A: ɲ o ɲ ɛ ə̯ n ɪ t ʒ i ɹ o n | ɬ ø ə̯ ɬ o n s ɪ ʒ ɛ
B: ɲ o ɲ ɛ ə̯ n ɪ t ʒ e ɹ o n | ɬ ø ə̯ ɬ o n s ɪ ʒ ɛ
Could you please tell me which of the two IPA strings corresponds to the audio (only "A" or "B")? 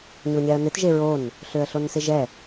B